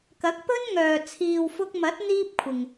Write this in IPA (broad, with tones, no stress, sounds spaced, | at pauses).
k ɐ˨˥ k̚ p ɵ˥ n ŋ œː˨ t͡sʰ iː˨ w f ʊ˧ k̚ m ɐ˨˥ t̚ n̪ iː˥ p̚ kʷʰ ɪ˨ ŋ